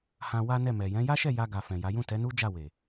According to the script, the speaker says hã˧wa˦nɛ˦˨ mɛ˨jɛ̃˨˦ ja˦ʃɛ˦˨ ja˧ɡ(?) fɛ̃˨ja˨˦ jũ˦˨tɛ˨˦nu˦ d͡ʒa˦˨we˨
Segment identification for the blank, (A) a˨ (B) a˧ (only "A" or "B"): A